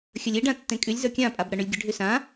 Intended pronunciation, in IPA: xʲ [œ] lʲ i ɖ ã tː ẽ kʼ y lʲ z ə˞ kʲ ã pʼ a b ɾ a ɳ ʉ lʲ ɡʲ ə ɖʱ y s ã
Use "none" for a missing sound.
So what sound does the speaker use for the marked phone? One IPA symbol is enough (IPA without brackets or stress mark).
ə